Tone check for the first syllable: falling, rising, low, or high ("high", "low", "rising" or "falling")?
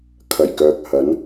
low